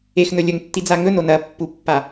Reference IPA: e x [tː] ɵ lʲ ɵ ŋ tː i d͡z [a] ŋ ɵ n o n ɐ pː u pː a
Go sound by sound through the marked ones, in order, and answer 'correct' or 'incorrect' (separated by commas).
incorrect, correct